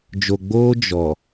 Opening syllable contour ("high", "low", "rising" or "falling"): low